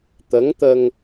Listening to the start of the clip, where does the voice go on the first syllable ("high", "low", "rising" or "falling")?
rising